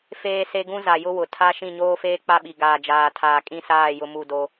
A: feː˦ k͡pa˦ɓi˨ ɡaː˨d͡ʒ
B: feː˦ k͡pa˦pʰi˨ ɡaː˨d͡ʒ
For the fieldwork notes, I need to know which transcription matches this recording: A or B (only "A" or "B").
A